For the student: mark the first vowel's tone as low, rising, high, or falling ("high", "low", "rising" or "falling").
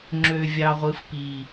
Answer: low